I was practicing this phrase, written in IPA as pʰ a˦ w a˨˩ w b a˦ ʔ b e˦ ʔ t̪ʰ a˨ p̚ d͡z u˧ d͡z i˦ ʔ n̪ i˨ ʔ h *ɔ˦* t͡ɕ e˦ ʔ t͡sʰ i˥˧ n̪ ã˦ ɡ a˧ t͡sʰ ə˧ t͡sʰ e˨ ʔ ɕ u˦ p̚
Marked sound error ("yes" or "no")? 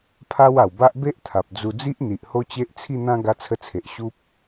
yes